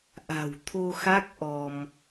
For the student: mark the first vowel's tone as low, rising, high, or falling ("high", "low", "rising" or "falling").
low